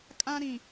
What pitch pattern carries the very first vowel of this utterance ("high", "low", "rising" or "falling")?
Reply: high